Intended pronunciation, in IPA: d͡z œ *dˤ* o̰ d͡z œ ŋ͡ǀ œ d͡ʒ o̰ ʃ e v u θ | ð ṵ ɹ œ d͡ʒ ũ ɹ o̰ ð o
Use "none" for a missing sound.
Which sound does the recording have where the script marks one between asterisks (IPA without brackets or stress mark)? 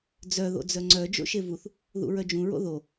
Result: ð